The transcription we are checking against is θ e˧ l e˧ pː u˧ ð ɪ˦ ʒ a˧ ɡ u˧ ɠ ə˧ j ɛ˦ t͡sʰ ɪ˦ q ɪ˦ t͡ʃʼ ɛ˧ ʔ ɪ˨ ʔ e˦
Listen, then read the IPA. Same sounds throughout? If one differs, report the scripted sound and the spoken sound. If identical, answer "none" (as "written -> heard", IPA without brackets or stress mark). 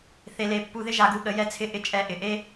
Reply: q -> ʔ